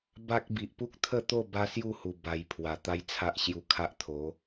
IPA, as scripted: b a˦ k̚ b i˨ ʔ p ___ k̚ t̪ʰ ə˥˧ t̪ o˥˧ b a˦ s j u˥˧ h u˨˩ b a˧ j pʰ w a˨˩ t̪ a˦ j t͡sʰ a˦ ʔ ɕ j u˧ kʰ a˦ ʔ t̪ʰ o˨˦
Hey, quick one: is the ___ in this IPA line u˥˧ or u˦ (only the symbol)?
u˦